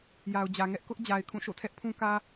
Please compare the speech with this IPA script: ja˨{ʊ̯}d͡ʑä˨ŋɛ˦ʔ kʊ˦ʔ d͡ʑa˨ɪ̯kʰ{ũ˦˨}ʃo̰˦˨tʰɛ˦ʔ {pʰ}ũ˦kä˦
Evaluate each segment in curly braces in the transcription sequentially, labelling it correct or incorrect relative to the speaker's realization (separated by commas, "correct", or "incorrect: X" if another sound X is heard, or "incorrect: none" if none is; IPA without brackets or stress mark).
correct, correct, correct